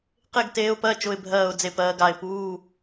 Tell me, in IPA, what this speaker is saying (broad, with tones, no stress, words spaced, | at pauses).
qe˥˨ɡteː˧˥ʊ̯pɜ˧˥˧ t͡ʃʊ˧˥˧ɪ̯bʱɜː˥˨ʊ̯ d͡ze˥˨pɜː˧˥ɡ a˩˧˩ɪ̯puː˧˥˧